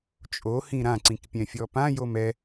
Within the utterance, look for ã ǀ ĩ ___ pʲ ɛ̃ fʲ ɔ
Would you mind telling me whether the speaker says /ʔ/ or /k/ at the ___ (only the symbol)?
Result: k